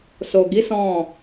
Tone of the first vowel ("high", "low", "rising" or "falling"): low